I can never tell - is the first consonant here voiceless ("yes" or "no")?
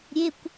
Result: no